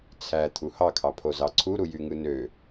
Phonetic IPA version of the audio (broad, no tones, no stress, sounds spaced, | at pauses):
t͡sʰ æ t̪ʰ u h ɑ kʰ ɑ pʰ o z ɑ ǀʰ u ɾ u j y ŋ ɯ n ø